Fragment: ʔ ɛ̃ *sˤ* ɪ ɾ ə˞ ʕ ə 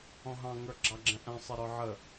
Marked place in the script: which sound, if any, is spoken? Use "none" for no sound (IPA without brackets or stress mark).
sˤ